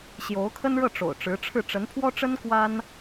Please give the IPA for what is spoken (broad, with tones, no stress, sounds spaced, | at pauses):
ɕ j o˧˥ ʊ̯ kʰ ə˥ n ɻ ɤ˥˩ ʈ͡ʂ o̰˨˩ ʊ̯ ʈ͡ʂ ɻ̩˧˥ ʈ͡ʂʰ ɻ̩˥˩ ʈ͡ʂ ə˧˥ n pʰ w ɔ˥ ʈ͡ʂ ə˥ n k w a˥ n